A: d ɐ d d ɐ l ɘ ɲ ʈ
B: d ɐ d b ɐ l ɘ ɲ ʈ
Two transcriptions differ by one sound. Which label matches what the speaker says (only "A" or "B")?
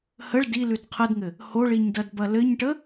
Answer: B